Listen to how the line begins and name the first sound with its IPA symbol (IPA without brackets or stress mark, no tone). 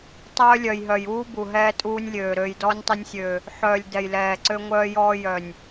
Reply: tˤ